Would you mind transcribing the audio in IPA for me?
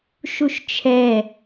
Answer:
ʃ u ʃ t͡ʃʰ ɛ

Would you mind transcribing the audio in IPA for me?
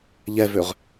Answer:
ʎ ɛ v ø ʁ

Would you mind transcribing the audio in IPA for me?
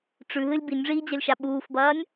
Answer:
ʈ͡ʂ ʉ ɦ ɨ lʲ b i nʲ ʐ iː d͡ʑ ɐ lʲ ʃ a ɓ uː f b ɐː nʲ

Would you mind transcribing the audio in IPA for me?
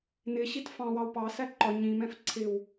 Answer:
n ɪ ɕ i t f ɑ̃ w ɑ w p ɑ s æ ǃ ɒ ɲ ĩ m ɛ̃ f ǀʰ ɪ w

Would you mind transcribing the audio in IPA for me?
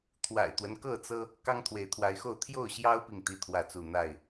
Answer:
t̪ʰ w a̰˨˩ ɪ̯ t̪ w ə˦ n k ɤ˥˨ t͡s ɤ˦ | k ɑ˦ ŋ t̪ʰ w e˨˦ ɪ̯ t̪ʰ w a˨˦ ɪ̯ x o˥˨ ʊ̯ t̪ʰ j o˥˨ ʊ̯ ɕ j ɑ˦ ʊ̯ p i˨ ŋ t̪ i˦ t̪ʰ w ä˥˨ t͡s u˥˨ n̪ a˥˨ ɪ̯

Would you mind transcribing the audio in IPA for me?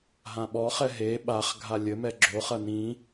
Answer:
ɦ ã ɓ ɔ χ ɛ ɦ e ɓ a χ ɡʱ a lʲ ɘ m ɛ ɡ͡ǁ o χ ɐ n ĩ

